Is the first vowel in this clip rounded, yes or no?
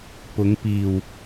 yes